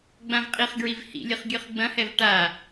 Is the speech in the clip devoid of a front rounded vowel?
yes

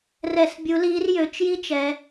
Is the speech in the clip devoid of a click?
yes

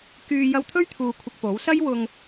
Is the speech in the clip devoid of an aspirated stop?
no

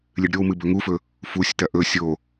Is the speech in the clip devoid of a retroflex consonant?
no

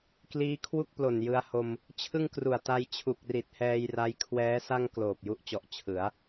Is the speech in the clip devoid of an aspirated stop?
no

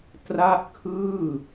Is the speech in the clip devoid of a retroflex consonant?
yes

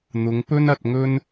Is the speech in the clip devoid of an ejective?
yes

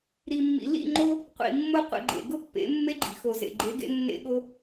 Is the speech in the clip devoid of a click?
no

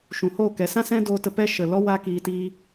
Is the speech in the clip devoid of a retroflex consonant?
yes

